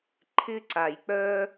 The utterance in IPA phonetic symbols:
ǃʰɪ˥ǀa˧jk͡pœ˥

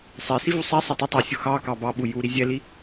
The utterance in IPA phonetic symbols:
sˤisivu sˤɛsˤɛtˤ itˤɛsʲʊ xɑkɑ bɑɓu juɾi zʲɛli

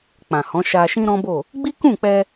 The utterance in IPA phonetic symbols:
k͡pã˨hɔ̃˨˦ ʃa˧ʃĩ˦ɾɔ̃˦bo˦˨ | ɡ͡bi˦kũ˦˨k͡pɛ˧

